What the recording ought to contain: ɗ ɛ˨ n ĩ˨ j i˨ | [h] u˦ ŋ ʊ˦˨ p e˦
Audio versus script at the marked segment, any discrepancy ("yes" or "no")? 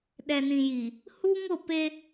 no